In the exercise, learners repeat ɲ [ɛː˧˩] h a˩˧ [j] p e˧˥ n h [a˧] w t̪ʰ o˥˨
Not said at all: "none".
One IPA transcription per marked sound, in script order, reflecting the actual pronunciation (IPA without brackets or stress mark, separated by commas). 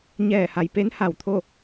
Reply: ɛː˧˩, j, a˧˩